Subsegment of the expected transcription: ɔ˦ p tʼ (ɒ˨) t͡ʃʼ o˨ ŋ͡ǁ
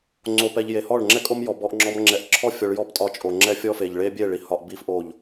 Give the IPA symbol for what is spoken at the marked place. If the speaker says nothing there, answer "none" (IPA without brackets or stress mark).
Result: ɒ˧